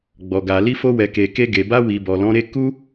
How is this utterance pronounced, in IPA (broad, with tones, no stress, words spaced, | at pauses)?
ɡ͡bɔ˨ɡa˨ li˧fo˧wɛ˨ ke˨ ke˧ɡe˨ ba˧wi˨ bɔ˨lɔ̃˨˦ɾe˦ ku˦